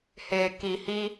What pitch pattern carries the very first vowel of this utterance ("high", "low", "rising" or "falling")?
low